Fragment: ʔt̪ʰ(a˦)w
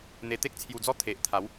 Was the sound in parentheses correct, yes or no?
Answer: no